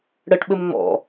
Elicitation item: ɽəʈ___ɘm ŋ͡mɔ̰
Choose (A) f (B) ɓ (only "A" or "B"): B